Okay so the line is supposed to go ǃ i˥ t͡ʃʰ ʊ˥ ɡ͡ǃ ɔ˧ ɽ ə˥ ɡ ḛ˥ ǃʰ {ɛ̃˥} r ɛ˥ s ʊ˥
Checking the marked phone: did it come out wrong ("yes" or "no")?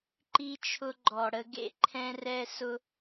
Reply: no